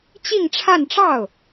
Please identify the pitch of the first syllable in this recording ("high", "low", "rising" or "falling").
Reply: falling